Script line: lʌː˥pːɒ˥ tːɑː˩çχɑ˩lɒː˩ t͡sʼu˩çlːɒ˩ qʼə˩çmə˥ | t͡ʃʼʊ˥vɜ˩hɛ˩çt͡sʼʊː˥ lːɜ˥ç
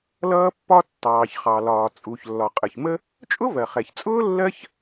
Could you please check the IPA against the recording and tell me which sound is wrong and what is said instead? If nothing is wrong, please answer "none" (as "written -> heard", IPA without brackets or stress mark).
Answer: h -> χ